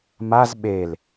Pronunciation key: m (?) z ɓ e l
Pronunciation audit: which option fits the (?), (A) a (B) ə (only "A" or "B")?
A